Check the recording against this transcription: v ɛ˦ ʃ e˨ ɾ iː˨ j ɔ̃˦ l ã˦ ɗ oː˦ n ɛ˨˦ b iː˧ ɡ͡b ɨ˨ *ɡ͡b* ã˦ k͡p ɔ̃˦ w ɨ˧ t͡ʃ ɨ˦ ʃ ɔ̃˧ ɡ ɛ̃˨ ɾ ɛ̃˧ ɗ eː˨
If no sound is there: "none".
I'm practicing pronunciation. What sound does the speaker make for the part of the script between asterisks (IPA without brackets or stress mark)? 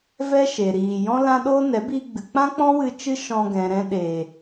k͡p